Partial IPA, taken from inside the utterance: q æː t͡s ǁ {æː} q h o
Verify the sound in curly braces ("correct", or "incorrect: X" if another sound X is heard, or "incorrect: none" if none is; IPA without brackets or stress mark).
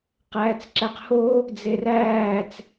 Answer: incorrect: æ